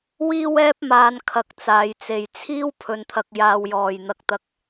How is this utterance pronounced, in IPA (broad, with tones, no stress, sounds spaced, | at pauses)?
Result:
w iː˥ w ɛː˥ p̚ m aː˧ n kʰ ɐ˧ k̚ t͡s aː˨˧ j t͡s e˨ j t͡sʰ iː˥ w pʰ ɵ˧ n t̪ʰ ɐ˧ k̚ j aː˧ w j ɔː˨ j n̪ ɐ˧ k̚ t̪ ɐ˧ k̚